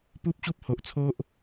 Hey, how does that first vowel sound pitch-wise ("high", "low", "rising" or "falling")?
high